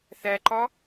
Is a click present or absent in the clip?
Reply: present